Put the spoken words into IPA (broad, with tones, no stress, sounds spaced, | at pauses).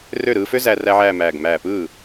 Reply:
r ø˥˩ ɾ ɯː˧ f ø˥ z æ˥˧ r æ˥ ʕ æː˥˧ m æː˧˩ ɡ m æː˧˩ p ɯː˥˩